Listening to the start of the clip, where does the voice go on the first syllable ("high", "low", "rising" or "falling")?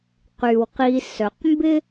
low